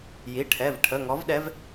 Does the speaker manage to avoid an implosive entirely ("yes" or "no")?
no